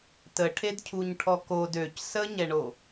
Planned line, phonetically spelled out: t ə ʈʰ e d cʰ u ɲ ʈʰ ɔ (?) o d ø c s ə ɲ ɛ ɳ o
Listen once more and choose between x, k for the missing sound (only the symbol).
k